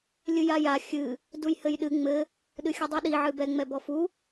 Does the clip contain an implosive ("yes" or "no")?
yes